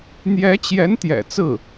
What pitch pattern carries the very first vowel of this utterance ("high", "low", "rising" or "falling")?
rising